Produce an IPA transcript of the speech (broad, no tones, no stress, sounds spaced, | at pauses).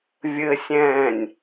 vʲ ɘ sʲ ɛ̃ː nʲ